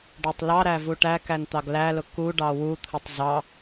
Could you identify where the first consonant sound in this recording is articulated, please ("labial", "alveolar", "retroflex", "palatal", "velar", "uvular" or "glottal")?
retroflex